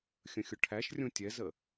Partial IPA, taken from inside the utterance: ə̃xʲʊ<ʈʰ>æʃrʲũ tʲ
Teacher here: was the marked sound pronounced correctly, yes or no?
yes